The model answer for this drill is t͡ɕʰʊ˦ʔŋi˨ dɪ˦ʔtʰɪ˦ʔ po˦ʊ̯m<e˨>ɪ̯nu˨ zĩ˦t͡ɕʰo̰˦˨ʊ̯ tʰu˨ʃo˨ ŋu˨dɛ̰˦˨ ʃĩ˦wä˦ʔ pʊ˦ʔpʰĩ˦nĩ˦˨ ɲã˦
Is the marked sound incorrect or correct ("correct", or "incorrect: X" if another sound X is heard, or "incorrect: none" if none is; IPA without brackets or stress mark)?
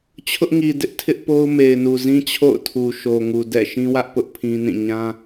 correct